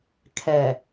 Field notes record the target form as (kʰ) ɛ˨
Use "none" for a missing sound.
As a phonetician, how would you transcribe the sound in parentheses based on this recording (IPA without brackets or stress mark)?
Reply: kʰ